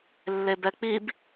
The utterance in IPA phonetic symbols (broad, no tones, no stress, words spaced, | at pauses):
lːebɛk͡pib